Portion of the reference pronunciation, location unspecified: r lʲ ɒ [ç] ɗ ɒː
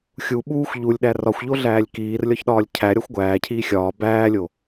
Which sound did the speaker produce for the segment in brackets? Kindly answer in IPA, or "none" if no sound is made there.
ç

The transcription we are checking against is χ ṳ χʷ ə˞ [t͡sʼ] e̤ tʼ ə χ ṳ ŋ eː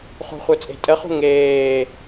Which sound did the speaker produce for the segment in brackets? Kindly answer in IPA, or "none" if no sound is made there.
t͡sʼ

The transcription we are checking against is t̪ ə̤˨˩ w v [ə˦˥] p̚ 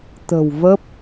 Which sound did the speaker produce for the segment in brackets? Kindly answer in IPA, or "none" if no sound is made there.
ə˦˥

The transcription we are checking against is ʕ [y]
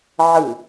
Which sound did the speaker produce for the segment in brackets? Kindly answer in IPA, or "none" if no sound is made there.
ɨ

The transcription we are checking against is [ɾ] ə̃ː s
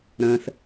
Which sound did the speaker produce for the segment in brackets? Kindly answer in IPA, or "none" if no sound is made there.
ɾ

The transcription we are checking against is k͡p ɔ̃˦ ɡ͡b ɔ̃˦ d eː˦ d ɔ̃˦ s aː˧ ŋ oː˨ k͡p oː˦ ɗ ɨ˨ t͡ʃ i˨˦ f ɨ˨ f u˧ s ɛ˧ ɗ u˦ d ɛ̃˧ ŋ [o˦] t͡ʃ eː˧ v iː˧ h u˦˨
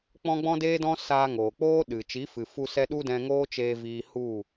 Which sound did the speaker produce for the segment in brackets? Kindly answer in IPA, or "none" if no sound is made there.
oː˦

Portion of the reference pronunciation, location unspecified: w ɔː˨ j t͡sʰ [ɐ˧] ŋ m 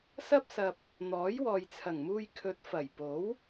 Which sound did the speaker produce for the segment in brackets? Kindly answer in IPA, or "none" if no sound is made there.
ɐ˨˩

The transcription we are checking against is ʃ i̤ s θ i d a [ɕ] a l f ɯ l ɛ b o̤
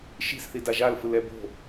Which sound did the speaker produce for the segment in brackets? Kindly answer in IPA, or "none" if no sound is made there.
ʒ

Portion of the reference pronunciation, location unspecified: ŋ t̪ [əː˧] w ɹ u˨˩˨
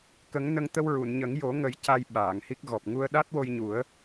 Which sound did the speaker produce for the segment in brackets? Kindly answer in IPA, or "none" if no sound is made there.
ə˧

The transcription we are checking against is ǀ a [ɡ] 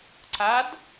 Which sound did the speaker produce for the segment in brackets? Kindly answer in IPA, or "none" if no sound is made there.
d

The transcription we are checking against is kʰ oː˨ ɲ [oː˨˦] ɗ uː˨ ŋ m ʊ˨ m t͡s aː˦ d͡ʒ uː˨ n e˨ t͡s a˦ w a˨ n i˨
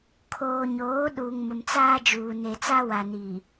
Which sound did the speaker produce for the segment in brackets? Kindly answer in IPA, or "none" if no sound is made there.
oː˨˦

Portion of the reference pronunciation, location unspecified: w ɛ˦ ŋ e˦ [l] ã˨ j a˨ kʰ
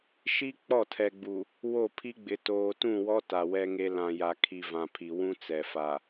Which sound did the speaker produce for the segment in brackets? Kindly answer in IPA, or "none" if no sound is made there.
l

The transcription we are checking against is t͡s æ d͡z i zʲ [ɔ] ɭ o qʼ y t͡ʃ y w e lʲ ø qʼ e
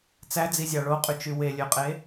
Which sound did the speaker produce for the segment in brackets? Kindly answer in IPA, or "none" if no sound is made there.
ɑ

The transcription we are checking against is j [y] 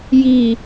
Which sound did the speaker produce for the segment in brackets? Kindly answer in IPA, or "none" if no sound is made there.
i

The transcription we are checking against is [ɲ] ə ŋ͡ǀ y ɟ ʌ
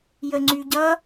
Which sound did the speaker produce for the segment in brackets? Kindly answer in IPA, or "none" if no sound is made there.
j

